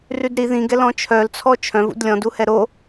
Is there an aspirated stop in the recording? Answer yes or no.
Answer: yes